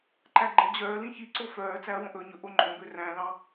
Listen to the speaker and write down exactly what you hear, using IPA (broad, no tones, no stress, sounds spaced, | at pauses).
ǃ æ ɡ͡ǃ ɛ d͡ʑ œː l ĩ ç i ǀ o f œː t͡s æ ɐ̯ w õ ʔ ɵ ɲ ɵ ʔ o ŋ͡ǃ õ b ø r æ̃ l ɑ̃